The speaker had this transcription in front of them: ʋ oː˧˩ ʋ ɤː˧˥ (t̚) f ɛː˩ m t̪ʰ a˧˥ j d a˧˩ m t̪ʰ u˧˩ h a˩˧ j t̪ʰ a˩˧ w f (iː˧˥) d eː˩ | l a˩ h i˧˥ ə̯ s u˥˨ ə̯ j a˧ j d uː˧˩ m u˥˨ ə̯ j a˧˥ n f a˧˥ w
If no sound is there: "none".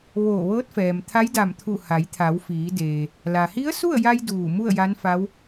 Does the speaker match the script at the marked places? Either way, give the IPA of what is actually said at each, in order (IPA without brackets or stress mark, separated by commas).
t̚, iː˩˧